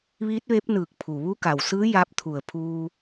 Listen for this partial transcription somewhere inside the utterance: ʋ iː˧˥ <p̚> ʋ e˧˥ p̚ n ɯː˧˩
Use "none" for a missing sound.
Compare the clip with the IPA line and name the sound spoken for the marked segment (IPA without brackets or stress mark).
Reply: t̚